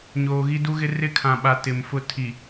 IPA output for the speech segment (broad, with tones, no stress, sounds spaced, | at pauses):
ɲ oː˨ ɣ i˦ d u˦ ɣ ɪ˦ r ɪ˦ kʰ ã˨ ɓ a˨ t ɪ˨ m f ʊ˦ tʰ i˨